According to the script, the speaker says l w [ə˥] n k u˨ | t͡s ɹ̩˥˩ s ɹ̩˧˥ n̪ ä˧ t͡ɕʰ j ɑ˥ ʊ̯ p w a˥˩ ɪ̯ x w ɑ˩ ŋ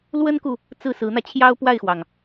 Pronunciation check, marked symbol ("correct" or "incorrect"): correct